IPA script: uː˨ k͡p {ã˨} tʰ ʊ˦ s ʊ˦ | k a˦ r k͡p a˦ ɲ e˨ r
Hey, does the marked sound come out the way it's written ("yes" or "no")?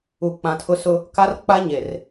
yes